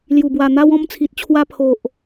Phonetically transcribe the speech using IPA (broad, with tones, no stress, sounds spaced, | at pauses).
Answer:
l j u˨˩ b w a˨˩ n̪ a˧ w ɔ̃˧ m t͡sʰ i˨ t̚ t͡ɕʰ w a˧ pʰ o˨ ʔ